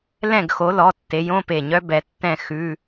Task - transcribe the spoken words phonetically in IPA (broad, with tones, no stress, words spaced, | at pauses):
lɛ̃˥˨ɡxo˨˦lɔ˩˧˩ tːe˨˦jõ˧˥˧pe˧˩ɲœ˦˥ bɛ˨˦tːɛ̃˥˨ xʉ˧˥˧